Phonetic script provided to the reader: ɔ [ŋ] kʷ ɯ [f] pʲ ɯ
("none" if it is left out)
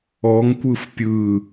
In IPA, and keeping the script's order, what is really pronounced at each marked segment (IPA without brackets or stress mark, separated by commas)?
ŋ, f